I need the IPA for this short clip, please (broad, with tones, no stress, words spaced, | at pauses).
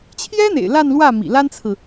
t͡ɕʰjɛ˥n̪ḛ˨˩ɪ̯ la˥˧nlwä˥˩ mḭ˨˩la˥nt͡sʰɹ̩˨